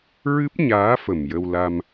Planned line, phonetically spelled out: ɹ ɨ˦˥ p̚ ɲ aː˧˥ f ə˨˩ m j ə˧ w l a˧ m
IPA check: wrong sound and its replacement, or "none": none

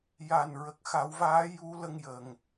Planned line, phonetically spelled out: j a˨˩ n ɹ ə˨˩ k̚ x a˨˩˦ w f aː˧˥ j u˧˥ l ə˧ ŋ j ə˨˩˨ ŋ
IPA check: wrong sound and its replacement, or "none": f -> v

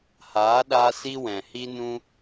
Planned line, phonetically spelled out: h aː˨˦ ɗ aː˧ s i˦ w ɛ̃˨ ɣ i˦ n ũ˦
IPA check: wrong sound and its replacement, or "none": ɣ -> h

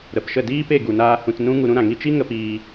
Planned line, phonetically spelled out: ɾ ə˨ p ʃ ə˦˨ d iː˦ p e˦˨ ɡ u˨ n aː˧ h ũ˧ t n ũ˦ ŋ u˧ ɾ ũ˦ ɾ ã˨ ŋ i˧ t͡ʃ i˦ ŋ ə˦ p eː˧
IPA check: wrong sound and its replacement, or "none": eː˧ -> iː˧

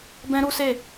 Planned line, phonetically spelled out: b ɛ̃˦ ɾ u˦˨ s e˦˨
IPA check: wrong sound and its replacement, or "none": u˦˨ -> u˦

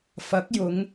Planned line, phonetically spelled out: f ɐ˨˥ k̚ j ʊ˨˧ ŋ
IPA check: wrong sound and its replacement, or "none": none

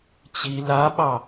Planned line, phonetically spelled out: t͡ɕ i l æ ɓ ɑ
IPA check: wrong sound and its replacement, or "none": æ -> a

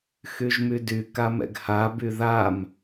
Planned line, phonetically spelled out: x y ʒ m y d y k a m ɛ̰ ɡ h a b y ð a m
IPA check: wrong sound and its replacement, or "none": none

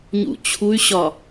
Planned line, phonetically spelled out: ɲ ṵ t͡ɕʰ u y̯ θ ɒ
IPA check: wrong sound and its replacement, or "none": θ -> ɕ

